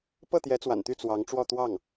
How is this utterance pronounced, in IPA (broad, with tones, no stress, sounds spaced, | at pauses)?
p ɤ˥˩ t̪ j ɛ˧˥ t͡s w a̰˨˩ n t̪ y˥˩ t͡s w ɑ˧˥ ŋ ʈ͡ʂ w ɔ˥˧ t̪ w ɑ˥˩ ŋ